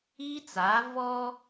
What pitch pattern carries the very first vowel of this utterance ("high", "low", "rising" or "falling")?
high